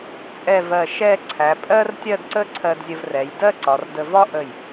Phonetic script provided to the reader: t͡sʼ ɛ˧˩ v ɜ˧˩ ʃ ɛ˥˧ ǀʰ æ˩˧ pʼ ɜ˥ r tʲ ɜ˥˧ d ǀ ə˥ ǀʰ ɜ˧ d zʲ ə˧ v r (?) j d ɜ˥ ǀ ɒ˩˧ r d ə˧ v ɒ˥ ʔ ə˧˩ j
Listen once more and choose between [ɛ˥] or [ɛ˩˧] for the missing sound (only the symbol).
ɛ˩˧